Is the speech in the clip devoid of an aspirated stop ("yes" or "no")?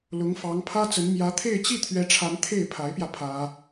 no